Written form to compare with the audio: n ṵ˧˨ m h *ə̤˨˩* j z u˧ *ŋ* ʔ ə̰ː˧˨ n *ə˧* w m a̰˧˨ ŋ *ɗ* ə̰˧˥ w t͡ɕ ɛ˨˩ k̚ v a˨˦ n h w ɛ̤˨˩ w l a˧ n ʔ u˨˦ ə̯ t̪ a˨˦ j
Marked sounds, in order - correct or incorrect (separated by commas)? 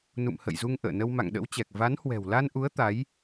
incorrect, correct, correct, correct